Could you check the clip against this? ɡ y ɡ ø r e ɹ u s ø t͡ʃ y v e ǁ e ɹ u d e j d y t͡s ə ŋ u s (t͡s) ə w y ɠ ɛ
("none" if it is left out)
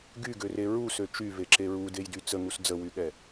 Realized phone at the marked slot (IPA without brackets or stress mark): d͡z